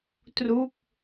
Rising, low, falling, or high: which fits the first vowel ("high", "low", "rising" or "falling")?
falling